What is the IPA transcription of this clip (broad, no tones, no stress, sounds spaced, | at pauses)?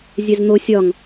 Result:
zʲ ɛ z n̪ o sʲ ɒ ŋ